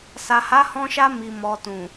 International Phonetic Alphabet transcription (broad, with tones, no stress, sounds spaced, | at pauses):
s a˨ h a˨˦ h ɔ̃˧ ʃ a˧ m i˨ m ɔ˨ t ũ˨